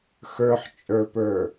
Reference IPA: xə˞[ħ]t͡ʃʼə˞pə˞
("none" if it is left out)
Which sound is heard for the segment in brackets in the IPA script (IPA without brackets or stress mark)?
ħ